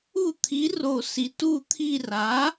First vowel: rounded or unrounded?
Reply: rounded